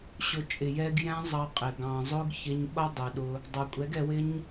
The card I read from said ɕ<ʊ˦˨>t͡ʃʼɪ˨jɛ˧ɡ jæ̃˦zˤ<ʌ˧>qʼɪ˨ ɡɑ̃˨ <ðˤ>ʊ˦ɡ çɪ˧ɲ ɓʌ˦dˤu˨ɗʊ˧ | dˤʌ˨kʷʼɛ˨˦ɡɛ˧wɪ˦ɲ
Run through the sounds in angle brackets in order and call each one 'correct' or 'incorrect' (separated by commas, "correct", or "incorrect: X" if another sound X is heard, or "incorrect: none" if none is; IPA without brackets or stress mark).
incorrect: ʊ˨, incorrect: ɑ˧, incorrect: zˤ